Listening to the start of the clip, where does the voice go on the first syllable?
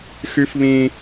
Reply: rising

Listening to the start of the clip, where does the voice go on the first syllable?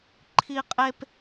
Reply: high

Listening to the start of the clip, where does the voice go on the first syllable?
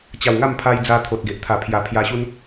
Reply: low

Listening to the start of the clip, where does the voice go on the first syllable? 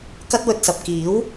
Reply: high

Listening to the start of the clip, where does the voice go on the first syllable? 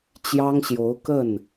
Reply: high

